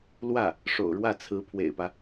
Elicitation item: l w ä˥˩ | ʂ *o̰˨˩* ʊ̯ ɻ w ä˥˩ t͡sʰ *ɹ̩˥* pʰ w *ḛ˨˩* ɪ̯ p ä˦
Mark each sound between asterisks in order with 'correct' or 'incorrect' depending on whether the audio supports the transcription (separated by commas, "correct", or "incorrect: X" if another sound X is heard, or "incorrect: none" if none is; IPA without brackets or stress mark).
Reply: correct, incorrect: ɹ̩˧˥, correct